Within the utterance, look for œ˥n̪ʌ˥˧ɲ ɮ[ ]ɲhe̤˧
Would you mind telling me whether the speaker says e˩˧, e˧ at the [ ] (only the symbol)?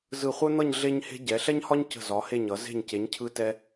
e˧